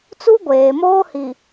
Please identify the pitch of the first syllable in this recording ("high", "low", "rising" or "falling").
high